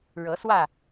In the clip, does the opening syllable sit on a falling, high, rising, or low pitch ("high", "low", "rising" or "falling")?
rising